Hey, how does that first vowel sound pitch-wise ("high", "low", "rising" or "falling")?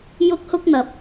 high